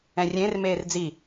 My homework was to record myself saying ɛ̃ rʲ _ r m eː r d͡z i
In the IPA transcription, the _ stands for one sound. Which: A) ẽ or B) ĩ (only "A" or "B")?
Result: A